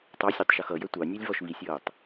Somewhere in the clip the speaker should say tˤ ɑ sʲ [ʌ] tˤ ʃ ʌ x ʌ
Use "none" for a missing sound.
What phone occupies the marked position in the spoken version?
ɑ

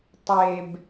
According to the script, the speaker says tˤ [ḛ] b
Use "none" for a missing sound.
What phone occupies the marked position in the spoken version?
e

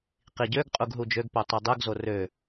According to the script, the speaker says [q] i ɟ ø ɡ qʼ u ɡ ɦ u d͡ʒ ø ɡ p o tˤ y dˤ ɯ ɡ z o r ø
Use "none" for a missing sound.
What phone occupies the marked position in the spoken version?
q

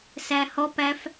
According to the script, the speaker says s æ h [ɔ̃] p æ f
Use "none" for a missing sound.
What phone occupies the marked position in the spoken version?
ɔ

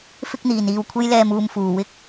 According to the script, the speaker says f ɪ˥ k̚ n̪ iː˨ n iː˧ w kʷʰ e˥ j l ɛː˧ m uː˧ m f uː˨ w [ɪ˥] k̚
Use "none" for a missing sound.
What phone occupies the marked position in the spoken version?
ɪ˥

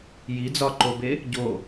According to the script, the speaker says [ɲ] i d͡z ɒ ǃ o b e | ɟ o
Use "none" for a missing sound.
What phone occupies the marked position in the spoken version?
j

